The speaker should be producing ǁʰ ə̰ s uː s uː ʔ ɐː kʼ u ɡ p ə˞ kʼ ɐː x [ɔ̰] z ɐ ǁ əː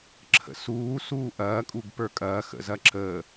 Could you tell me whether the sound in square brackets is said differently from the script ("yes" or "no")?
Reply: yes